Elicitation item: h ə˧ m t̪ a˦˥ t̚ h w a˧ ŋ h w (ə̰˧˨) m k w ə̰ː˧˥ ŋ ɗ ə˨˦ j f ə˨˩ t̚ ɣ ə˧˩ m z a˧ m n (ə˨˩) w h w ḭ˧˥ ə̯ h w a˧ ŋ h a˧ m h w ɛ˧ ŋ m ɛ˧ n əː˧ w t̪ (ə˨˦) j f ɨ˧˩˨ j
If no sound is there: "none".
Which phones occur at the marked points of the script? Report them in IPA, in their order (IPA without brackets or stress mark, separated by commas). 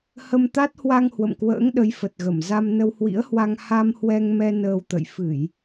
ə̰˧˨, ə˧, ə̰˧˨